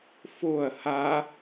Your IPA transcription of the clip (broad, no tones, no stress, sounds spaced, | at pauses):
f o ɐ̯ h a